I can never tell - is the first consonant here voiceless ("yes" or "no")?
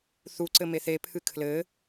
yes